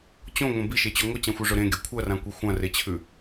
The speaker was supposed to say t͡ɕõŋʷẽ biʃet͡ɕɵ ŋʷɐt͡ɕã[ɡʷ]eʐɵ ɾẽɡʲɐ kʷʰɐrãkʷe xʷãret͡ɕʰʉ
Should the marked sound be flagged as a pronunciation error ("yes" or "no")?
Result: yes